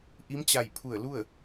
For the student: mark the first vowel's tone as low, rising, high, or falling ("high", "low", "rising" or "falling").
rising